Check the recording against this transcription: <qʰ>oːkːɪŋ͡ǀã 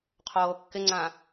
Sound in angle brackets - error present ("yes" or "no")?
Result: no